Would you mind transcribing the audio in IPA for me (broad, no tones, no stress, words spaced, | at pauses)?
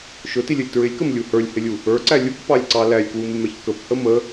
ʃʊtilʲəlʲ tɹɪlʲkəmlʲu hə˞lʲhɪlʲu | ə˞ǀæ lʲukpɑlʲǀɑ lælʲkwumɪmɛç kəphə mə